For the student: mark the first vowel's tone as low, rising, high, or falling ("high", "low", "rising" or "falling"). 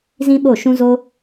high